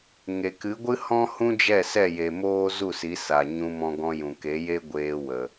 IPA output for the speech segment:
ŋ e˨ k ɨ˨˦ ɡʷ ɨ˦ h ɔ̃˦ h ũ˦ d͡ʒ ɛ˦˨ s ɛ˦˨ j e˨ m oː˦ z u˦˨ s i˨˦ s a˨ ɲ ũ˧ m ɔ̃˧ ɡ ɔ̃˧ j ũ˨ k e˨˦ j e˦ ɡʷ eː˧ w ə˨

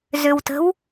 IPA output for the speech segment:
z ʏ w t ə̤ w

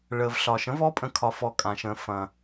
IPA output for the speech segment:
ɭ əː˨ v ɬ ɒ˨ ʃ ə̃˨˥ v ɔ˨˥ pʼ ə̃˨ kʰ ɒ˨ f ɔ˨ kʼ ã˨ ʃ ə̃ː˨ f ɐ̃˨

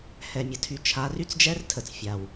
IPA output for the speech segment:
h ɛ˨ mʲ ə˨ tʰ y˨ t͡ʃʰ a˨˦ r y˦ t͡s d͡ʒ ɛ˦ r tʰ ə˨ t͡s fʲ a˨ w

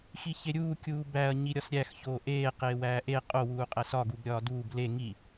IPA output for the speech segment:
x i ç e ɾʲ uː kʲ uː b æ ɐ̯ ɲ i ɾʲ ɒ s ɾʲ æ x ç oː ʔ eː q eː w æː ʔ e qʼ o w uː qʼ æ s ɒ ɡ u b ɾʲ ɒː d uː b l e ŋ i

